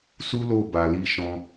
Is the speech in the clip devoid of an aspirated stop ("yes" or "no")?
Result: yes